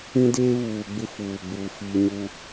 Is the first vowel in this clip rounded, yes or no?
no